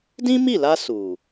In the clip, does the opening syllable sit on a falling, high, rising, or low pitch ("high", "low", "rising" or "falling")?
high